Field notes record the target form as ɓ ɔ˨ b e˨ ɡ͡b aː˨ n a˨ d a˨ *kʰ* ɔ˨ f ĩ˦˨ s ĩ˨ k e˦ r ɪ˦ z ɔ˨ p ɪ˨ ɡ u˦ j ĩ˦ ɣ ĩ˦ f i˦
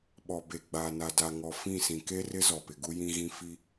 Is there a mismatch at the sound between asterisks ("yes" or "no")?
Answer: yes